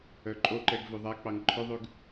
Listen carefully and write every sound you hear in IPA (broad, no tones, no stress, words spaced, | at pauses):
œǃʼoǃɛɡ vøðˤæk͡pɑŋ ǃʰœðˤʉɡ